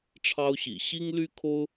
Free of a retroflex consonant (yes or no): no